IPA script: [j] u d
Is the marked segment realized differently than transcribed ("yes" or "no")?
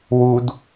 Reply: yes